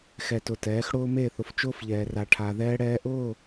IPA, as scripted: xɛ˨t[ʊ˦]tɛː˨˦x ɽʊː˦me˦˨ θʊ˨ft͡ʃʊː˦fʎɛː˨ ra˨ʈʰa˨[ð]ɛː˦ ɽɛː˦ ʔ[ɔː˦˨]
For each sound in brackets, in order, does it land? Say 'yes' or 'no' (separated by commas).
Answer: no, yes, no